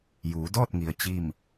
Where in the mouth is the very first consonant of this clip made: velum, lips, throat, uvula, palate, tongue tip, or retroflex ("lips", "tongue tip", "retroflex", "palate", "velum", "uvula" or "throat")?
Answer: palate